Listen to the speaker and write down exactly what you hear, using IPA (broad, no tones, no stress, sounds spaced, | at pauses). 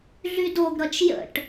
ɮ y d o ɡ ɾ ʌ t͡ʃ j ə̰ ʈ